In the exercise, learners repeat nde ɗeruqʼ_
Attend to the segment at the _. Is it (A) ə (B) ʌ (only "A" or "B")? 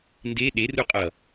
B